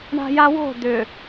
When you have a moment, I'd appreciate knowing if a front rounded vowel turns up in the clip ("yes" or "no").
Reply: yes